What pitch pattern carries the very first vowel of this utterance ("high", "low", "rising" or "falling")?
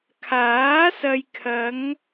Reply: rising